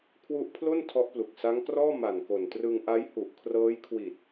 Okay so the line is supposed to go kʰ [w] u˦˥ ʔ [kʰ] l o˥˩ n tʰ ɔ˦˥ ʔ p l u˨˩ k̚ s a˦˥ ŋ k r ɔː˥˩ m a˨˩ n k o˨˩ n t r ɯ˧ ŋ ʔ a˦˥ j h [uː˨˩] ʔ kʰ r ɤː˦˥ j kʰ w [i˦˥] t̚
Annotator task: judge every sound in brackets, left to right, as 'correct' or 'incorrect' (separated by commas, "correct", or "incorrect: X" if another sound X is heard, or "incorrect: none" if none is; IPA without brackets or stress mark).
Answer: correct, incorrect: pʰ, incorrect: u˨˩, incorrect: i˨˩